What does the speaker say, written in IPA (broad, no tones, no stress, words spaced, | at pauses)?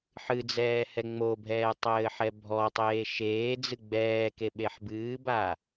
ħɨd͡zɛː hɛŋ͡mobʱɛː tˤɘːħɛbʱɔtˤeː ʃeːd͡zɨ ɡ͡bɛː keɓeħbɨːba